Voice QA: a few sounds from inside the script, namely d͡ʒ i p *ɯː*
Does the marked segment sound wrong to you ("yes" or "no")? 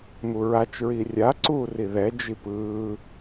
no